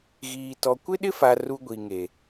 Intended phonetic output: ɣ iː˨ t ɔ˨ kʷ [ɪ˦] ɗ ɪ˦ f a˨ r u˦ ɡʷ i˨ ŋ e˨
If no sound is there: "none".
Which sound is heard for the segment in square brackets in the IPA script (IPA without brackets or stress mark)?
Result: ɪ˦